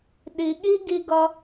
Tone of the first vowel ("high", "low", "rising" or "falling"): low